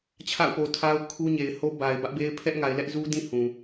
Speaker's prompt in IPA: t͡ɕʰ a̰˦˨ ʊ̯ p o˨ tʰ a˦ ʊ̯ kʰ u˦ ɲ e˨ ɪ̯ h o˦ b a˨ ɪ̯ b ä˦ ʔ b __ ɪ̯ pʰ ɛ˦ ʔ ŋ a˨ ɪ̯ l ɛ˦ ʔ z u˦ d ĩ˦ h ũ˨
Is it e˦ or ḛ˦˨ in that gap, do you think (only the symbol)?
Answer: e˦